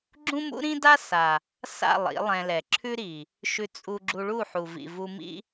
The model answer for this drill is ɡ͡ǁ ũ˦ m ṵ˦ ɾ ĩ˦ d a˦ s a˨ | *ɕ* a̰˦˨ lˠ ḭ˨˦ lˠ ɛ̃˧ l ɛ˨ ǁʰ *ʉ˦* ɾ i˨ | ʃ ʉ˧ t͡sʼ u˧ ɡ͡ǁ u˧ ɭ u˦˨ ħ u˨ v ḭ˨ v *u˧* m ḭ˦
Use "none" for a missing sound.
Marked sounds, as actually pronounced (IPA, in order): s, ʉ˦, u˧

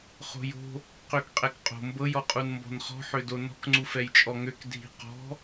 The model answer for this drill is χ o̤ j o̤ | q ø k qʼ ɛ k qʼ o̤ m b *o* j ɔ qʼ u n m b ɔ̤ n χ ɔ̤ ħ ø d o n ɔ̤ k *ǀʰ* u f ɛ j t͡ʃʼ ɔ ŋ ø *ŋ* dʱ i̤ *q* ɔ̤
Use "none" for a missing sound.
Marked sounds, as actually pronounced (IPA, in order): ɤ, ŋ͡ǀ, k, q

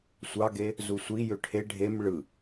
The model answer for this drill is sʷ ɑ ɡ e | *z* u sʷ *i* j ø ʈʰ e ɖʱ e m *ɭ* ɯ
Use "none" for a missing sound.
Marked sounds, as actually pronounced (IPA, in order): z, i, ɭ

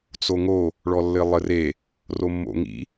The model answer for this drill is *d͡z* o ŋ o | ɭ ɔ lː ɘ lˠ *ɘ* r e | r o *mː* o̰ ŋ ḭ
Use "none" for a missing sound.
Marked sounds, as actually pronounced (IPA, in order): t͡s, ɘ, mː

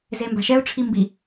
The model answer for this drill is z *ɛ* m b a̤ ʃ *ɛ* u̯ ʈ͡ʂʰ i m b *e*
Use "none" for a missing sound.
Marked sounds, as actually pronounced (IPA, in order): e, ɛ, i

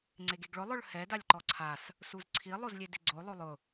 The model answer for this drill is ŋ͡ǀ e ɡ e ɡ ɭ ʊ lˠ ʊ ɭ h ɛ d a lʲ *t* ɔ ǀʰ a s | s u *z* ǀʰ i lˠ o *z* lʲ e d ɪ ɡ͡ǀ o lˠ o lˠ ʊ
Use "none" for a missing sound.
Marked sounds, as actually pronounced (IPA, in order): ǃ, z, z

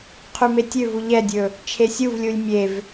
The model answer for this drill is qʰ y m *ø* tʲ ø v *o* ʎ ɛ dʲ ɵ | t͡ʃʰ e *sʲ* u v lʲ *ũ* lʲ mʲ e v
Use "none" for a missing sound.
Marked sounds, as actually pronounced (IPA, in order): e, u, sʲ, u

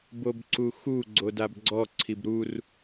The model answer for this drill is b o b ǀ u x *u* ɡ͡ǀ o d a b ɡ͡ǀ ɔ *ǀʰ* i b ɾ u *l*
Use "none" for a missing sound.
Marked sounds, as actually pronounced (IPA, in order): u, ǀʰ, r

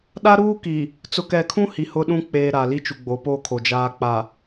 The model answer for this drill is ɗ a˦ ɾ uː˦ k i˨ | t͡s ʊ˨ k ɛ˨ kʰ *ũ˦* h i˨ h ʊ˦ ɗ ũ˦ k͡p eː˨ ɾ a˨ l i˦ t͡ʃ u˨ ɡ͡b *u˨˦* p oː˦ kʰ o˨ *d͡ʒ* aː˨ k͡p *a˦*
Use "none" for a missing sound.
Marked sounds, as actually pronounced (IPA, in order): ũ˦, o˨˦, d͡ʒ, a˨

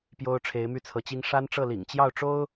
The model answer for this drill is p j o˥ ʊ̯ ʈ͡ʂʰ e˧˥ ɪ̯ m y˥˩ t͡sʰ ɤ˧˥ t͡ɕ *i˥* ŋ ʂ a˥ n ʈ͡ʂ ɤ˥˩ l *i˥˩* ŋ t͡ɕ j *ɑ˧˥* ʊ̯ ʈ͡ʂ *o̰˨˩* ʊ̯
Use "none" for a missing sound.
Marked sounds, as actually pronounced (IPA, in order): i˥, ḭ˨˩, ɑ˥˩, o˥

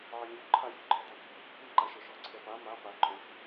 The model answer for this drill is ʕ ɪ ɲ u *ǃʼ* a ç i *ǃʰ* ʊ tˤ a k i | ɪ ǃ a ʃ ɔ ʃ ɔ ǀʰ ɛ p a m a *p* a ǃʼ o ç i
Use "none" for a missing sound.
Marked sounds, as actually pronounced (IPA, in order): ǃʰ, ǃʰ, p

